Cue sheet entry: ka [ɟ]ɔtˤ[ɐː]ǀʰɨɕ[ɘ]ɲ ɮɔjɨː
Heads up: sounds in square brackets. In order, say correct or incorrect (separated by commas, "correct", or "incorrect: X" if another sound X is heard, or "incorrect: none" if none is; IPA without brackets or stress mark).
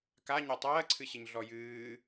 incorrect: ɲ, correct, correct